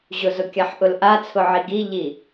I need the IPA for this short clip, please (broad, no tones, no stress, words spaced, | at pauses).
ʑʊzʊkʲaħʔʊl ʔat͡sʰʊʕi ɡiʎi